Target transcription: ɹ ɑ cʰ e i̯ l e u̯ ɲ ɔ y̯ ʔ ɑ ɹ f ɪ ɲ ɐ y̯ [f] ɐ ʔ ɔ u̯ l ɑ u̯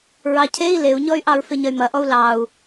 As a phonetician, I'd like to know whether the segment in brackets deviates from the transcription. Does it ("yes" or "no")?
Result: yes